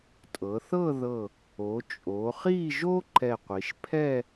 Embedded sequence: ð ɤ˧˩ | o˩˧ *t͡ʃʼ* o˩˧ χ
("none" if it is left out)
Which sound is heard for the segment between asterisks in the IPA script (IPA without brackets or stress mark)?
t͡ʃʼ